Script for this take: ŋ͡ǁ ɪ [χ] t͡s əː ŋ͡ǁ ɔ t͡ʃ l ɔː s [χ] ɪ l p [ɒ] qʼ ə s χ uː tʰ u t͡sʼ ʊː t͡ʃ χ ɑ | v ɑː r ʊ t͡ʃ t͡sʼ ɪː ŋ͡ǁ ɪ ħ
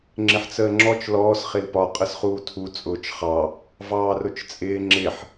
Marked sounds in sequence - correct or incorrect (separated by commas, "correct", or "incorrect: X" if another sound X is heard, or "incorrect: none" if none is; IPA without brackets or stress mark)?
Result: incorrect: ħ, correct, correct